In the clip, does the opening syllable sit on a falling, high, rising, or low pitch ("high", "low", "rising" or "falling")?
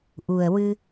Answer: low